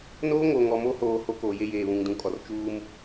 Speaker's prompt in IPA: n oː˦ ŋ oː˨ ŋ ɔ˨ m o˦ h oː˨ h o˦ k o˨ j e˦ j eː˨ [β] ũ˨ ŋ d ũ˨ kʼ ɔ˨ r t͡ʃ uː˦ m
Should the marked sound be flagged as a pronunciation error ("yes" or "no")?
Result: no